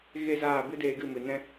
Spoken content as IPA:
ɣ e˦ z aː˦˨ b ɨ˦ d eː˧ ɡ ɨ˦˨ m ɨ˨ n ɛ̃˦

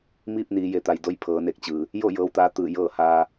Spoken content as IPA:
m iː˥˨ p̚ n iː˩˧ j e˩˧ t̪ a˩ j d o˧ j pʰ ɤː˩˧ n e˧˩ k̚ t͡ɕ ɯː˩ | j o˥˨ j ɤː˧˥ w t̪ aː˧˥ t̪ ɯː˧˩ j ɤː˥˨ h aː˧

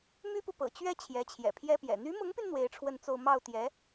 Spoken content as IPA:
m y˥ p u˨ p ɤ̰˨˩ t͡ɕ ɥ ɛ˥ t͡ɕʰ j ɛ˧˥ t͡ɕʰ j ɛ̰˨˩ pʰ j ɛ˥ p j ɛ̰˨˩ n̪ y˧˥ m ʊ˧˥ ŋ p y˧ n n̪ w e˧˥ ɪ̯ ʈ͡ʂʰ w ə˥˧ n t͡s o˥˧ ʊ̯ m ɑ˥˩ ʊ̯ t̪ j ɛ˧˥

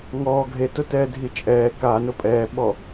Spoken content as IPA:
ŋ ɔː ɡʱ e t ʊ t ɛː dʱ i t͡ʃʼ ɛː k a n ʊ pʼ ɛː ɓ ɔ

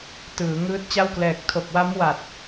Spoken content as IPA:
t ɯː˩˦ ŋ ɯː˦˥ t̚ t͡ɕ a˥˩ w k l ɛː˨˩ k̚ tʰ o˨˩ k̚ w a˦˥ m w a˨˩ t̚

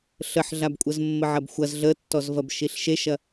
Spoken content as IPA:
ɬ ə ħ ɮ a b kʷʼ ə z mː ə ʕ ɐ b xʷ ɐ z ɮ ə tː ɔ z v ɐ b ʃ i ɬ ʃ e ʃ ɐ

